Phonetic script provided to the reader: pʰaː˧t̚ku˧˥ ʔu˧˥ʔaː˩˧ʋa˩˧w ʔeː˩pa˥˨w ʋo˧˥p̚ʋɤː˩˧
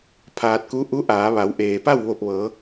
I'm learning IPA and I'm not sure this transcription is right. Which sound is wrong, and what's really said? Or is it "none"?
o˧˥ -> o˧˩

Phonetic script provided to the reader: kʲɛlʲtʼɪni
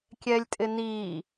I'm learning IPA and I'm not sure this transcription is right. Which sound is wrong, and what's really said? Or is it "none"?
none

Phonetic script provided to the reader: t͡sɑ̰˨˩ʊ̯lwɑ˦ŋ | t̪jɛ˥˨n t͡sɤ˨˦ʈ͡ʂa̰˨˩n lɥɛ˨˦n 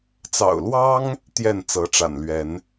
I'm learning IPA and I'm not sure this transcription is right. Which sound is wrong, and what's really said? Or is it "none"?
none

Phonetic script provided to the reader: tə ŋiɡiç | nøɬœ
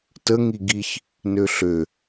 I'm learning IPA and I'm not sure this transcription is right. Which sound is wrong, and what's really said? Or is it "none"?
œ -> ø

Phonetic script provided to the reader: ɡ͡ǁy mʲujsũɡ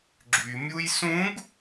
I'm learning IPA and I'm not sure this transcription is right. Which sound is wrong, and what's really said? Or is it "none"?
none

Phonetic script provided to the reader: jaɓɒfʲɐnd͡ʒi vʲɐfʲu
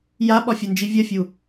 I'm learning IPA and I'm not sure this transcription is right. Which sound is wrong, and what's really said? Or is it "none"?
none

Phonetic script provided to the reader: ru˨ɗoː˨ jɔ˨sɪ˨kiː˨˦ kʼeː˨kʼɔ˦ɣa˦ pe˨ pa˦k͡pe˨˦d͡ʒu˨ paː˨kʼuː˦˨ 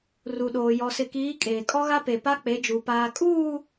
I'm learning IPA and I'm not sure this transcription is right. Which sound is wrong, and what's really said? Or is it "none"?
none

